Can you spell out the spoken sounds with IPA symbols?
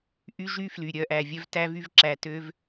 ʔ y˦ ʒ y˦ f l y˨ ɾʲ œ˧ ʔ æ˨ vʲ œ˦ v t æ˦ v y˦ v ǁ æ˧ t ø˦ v

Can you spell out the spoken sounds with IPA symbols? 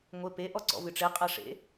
ŋʷ e p e ʔ ɔ ǀ ɔ̰ v ɨ ʈ͡ʂ e qʼ ɐ ʂ ḛ

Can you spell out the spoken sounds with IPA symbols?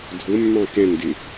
dʱ ʊ mː ɑ̃ k ɛ̃ n d ɪ

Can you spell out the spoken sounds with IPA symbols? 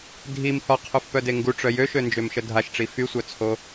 dʱ i m h ɔ qʰ u f p œ d e ŋ ɡ u ʈ͡ʂ œ j ø ʃ ø n d͡ʒ ø m ʃ ə dʱ a ʃ ʈ͡ʂ i f y sʷ œ t͡sʰ o

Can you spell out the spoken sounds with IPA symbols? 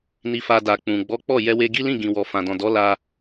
n i˧ f a˧ d a˨ k͡p ũ˨ ɡ͡b ɔ˨˦ k͡p ɔ˦˨ j ɛ˧ w e˧ ɡ i˦ l ĩ˦˨ ɡ ĩ˨ w ɔ˨ f ã˨ d ɔ̃˨ d ɔ˨˦ l a˧

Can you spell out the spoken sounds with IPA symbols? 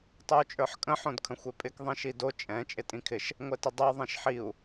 tˤ ɛ u̯ t͡ʃʼ ə˞ ħ kʼ ə̃ ħ õ d kʰ ə̃ xʷ e pʼ ɪ k ðˤ ĩ ʃ i d o t͡ʃʼ ɛ̃ t͡ʃʼ ɪ tʼ ĩ kʰ ɪ ʃ | ŋʷ ɛ t ə dˤ ɛ ðˤ ẽ ʃ ħ i u̯

